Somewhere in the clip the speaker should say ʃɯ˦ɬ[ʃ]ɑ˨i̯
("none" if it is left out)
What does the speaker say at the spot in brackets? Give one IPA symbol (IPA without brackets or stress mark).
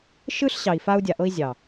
ɕ